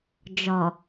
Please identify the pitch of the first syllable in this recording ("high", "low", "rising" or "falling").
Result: low